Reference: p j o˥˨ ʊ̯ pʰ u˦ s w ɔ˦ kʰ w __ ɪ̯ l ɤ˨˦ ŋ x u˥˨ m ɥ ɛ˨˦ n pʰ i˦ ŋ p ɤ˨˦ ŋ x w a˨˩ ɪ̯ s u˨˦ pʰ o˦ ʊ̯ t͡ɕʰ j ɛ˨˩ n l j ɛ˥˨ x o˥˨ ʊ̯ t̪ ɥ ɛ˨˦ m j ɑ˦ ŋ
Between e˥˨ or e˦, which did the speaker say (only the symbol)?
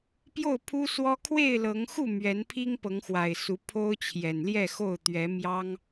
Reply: e˥˨